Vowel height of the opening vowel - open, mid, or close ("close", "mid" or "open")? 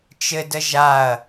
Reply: mid